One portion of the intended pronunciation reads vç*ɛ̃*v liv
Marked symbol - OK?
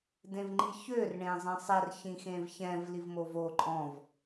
yes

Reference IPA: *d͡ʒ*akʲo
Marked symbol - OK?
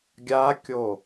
no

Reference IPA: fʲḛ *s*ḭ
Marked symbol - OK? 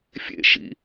no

